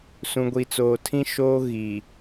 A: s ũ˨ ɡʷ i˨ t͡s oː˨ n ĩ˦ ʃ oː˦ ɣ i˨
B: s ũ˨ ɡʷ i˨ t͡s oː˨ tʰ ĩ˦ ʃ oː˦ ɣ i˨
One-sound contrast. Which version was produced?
B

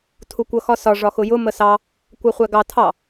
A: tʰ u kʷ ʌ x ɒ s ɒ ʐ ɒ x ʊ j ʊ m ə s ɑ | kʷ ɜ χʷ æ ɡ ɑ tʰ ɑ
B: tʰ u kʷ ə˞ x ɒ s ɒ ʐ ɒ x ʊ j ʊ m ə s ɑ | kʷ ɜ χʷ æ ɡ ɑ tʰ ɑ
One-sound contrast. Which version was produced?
A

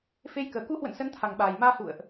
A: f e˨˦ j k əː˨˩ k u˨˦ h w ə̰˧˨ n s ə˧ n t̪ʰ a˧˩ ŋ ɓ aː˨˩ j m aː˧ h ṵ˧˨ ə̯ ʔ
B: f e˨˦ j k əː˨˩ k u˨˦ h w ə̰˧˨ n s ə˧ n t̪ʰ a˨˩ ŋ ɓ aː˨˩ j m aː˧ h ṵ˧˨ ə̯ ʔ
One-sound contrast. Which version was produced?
B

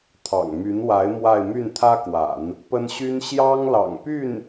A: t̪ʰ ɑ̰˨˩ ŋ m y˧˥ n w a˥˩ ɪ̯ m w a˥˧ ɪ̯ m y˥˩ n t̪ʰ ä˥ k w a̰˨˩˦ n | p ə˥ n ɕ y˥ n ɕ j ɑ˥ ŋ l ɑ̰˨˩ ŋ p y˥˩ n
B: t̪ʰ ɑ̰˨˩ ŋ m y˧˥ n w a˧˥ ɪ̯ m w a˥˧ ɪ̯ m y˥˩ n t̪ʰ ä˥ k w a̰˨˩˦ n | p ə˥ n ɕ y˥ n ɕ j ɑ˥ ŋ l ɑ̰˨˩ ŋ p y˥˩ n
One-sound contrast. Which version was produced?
B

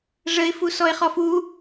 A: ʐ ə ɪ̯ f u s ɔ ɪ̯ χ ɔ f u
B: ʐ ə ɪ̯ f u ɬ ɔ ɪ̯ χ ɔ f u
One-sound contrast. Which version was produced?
A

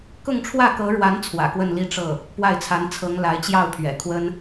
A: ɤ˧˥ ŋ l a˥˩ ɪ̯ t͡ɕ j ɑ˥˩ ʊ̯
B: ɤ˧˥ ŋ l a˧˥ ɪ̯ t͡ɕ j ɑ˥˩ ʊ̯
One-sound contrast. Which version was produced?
B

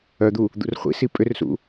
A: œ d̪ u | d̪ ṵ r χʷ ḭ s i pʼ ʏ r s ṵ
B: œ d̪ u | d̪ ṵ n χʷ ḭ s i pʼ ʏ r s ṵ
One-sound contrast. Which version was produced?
A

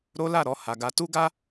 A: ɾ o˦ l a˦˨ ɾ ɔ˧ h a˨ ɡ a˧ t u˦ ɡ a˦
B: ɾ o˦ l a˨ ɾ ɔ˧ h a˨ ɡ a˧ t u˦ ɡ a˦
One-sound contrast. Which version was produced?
A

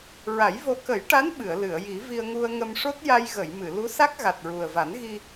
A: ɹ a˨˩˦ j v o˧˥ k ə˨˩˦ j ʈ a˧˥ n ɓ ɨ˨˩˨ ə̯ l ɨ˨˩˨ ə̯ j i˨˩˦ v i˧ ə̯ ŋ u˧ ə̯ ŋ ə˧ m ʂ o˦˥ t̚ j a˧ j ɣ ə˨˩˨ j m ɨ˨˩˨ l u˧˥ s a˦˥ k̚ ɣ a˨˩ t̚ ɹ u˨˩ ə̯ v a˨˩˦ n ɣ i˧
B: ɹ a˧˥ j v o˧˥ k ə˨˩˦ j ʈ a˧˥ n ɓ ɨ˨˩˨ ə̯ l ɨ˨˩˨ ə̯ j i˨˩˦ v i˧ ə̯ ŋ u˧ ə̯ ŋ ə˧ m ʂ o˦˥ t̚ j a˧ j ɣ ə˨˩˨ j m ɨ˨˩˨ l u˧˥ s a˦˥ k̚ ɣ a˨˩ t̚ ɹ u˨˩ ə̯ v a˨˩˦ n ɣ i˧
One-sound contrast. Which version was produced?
A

